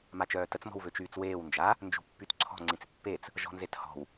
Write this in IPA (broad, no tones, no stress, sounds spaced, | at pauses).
m a t͡ʃ œː t ə t͡s m ɔ̤ w v ø t͡ʃ yː t͡s w eː w n d͡ʒ a | n d͡ʒ ṳ pː y t ǀʰ ɔ̤ ŋ͡ǀ ĩ t͡s pː e t͡s | ʒ ɔ̤ n z e t h ɔ̤ w